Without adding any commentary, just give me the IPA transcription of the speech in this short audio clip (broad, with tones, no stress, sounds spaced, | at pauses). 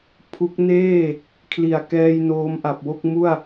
pʰ u˦˥ k̚ n eː˥˩ | kʰ l i˨˩ a̯ k ɛː˧ j n oː˦˥ m ʔ a˨˩ p̚ w o˥˩ k̚ m u˥˩ a̯